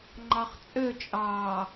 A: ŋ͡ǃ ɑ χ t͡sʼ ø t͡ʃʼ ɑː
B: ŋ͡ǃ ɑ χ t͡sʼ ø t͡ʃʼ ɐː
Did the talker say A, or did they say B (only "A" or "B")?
A